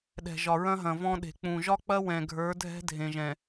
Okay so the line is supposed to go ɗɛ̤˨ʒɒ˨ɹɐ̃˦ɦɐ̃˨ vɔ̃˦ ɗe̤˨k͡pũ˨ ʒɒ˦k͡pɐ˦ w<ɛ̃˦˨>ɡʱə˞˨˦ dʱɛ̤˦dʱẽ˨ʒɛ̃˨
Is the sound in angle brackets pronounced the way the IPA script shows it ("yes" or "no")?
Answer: no